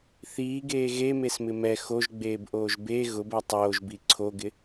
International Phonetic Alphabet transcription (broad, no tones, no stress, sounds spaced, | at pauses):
θ iː ɡ eː ɣ e m e s m ɪ m ɛ x o ʒ ɡ͡b eː b ʔ oː ʒ b e ɣ ʊ b ɛ tˤ oː ʒ b i ǀʰ o ɡ ɪ